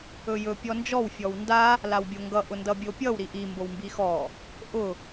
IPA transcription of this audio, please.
ɵjɵ pʲɔnd͡ʒɔw fʲɔwnda | lawbʲoŋɡʌ ʔʊndʌbʲopʲʌw ɾiʔi mbowmbixɔ | ʔʊ

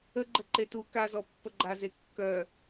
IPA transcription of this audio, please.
əɡ͡ǃə ǃetu kazɔ pːəɡ͡ǃaze kːœ

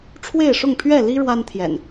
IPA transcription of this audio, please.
ʈ͡ʂʰwe˥˨ɪ̯ʂʊ˥˨ŋ pʰɥɛ˥˨li˦ ɻwa˦nt̪ʰjɛ̰˨˩n

